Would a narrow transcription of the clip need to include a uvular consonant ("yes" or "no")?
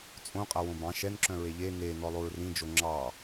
yes